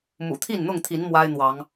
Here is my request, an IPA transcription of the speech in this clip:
m ṵ˨˩ t̪ʰ i˥˨ n n̪ ʊ˥˨ ŋ t̪ʰ i˨˦ n m w a˦ ɪ̯ n̪ w ɑ˨˦ ŋ

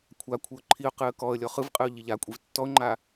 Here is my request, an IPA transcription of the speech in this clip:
kʷʰ a kʷʰ ɯ ʊ̯ ǃʰ i ʊ̯ q ɯ ə̯ k ɔ ə̯ lʲ ɔ χ ɯ v qʼ ɯ ʊ̯ ʎ i ʎ a kʷʼ i v tː ɔ ʊ̯ ŋ͡ǃ a

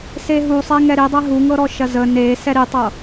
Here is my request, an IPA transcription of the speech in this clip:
s e ɦ u sˤ e ŋ ɛ ɾ i dˤ ɛ ɦ u ŋ ɤ ɾ ɔ ʃ ɐ z ə n e s ɛ ɾ i tˤ ɤ

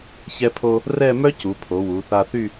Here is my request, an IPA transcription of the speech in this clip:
ç ɛ˥ pʰ o˥ | r ɛ˥˧ m œ˥ c u˩˧ pʰ o˩˧ w u˩˧ θ a˧ θ y˥˧

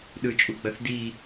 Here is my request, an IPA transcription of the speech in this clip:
ɗ ɯ t͡ʃʼ u ɡ͡b ɐ θ d i

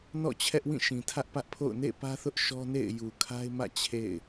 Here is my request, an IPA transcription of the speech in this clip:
n ɔ̰˦˨ t͡ɕʰ ɛ˦ ʔ w ĩ˦˨ ʃ ĩ˨ tʰ ä˦ ʔ p ä˦ ʔ pʰ o̰˦˨ ʊ̯ n ḛ˦˨ p ä˦ θ ʊ˦ ʔ ʃ ɔ˦ n ḛ˦˨ ɪ̯ j u˨ kʰ a˦ ɪ̯ m ä̰˦˨ t͡ɕʰ ḛ˦˨ ɪ̯

